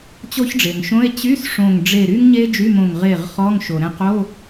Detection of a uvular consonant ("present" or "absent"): present